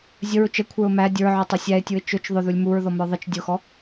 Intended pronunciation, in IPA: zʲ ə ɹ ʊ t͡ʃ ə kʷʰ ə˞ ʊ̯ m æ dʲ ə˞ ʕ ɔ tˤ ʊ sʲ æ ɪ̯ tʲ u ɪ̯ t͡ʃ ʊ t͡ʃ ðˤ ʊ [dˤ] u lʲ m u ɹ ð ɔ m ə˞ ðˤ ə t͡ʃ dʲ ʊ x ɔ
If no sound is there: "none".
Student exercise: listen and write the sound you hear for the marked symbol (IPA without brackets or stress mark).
ð